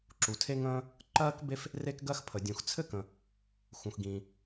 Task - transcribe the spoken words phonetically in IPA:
ǁu˩tʰe˥ŋə̃ː˥ | ǃɜː˥k be˥f | re˥kɡɜ˥xpʰə˩ dʲũ˩xt͡sʰɘ˥ kə̃˩ | xũ˩xɡĩ˩

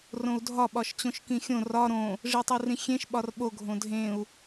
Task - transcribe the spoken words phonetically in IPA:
rõu̯dʱɒ ɓɒʃt͡ɕõʃkĩxʲõ rɒ ɾõ | ʐitˤurĩxʲẽʃ ɓɒrɓo ɡʱõdʱẽu̯

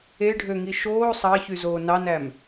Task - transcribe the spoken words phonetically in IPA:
eɖʱøŋi ʃoː sˤɑçyzoː nɑnæm

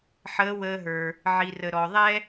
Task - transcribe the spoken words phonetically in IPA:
ħəː˧˥wəː˧ɦə˞˩ | ʕi˩rə˩ ɾɔ˩ ðˤɛ˥

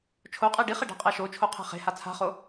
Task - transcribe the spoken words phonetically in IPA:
t͡ʃʰoqʼe ɖiχe ɖa̤qʼɛʃot͡ʃʰo qʰe̤χe̤ha t͡sʰa̤χo

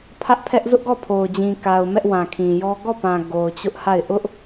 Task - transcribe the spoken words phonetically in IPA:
pʰä˦ʔpʰɛ˦ʔ zʊ˦ʔɡɔ˦˨pʰo˨ʊ̯d͡ʑĩ˨ ka˨ʊ̯ mɛ˦ʔwã˨kʰĩ˨jɔ˦ ɡɔ˦˨pã˨ ɡo˨ʊ̯t͡ɕʊ˦ʔha˦˨ɪ̯ ʔʊ˦ʔ

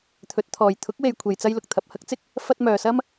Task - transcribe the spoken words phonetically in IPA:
t̪ʰɵ˨˥t̚t̪ʰɔː˨j t̪ʰʊ˨˥k̚we˨jkʷʰe˨j t͡sɐ˧jlʊ˨k̚t̪ʰɐ˨p̚ hɐ˥k̚t͡sɪ˥k̚ | fɐ˧t̚ mœː˨sɐ˥m

